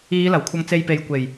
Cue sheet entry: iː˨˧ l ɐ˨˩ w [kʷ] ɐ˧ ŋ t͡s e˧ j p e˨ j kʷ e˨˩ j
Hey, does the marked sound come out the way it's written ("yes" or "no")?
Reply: no